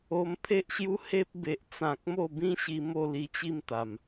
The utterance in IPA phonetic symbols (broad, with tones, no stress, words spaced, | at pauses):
o˧mpʰe˦ʔɕju˦ he˦p̚be˨ʔt͡sã˨k̚ mo˥˧bĩ˦ɕi˧ mo˥˧li˧t͡ɕi˥˧m t̪a˨˩m